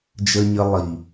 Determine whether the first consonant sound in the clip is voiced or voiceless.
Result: voiced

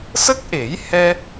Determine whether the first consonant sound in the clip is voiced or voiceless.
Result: voiceless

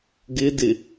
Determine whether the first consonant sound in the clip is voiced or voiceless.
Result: voiced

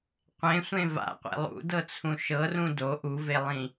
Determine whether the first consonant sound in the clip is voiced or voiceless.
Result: voiceless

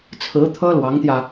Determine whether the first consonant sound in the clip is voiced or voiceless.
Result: voiceless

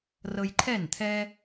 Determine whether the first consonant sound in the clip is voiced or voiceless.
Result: voiced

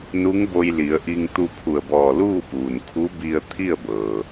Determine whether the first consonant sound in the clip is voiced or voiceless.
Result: voiced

